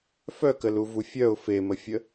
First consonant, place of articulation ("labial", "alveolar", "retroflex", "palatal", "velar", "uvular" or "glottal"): labial